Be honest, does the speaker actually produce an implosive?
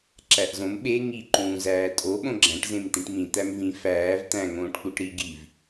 yes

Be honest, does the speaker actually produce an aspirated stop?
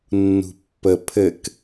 yes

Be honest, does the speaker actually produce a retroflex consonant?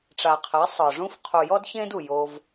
yes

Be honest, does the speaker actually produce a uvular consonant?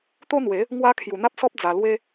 no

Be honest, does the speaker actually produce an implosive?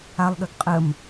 yes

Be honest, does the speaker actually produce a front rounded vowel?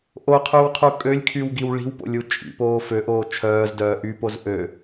yes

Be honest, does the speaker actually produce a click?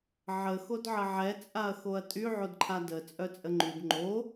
yes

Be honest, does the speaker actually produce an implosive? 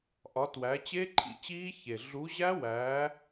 no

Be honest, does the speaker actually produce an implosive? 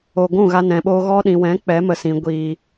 yes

